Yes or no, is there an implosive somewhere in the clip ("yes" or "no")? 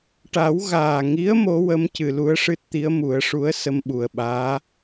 yes